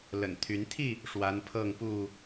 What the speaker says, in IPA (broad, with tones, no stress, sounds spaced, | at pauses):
l ə̰˨˩ n t̪ʰ y˨˦ n t̪ʰ i˥˨ | ʂ w a˨˦ n pʰ ɤ˥˨ ŋ p u˥˨